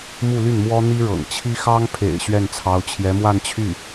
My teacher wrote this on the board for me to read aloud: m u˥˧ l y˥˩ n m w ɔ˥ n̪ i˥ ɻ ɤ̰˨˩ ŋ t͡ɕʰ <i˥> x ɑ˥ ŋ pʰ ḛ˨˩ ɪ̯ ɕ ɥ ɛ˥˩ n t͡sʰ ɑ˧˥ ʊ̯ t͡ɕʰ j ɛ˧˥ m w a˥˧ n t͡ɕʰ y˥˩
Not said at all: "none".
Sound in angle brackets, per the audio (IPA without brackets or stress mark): i˥